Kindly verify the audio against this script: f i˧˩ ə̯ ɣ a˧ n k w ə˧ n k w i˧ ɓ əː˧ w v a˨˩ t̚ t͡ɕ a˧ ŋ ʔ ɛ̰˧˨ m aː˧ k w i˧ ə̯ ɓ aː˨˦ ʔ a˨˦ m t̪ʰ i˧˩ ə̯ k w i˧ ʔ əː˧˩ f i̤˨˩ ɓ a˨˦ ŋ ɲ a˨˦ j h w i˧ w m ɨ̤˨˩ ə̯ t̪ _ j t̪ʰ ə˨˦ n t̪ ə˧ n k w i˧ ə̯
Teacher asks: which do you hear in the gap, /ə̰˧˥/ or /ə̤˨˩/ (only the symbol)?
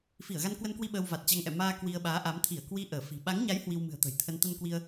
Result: ə̤˨˩